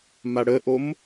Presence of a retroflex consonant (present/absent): present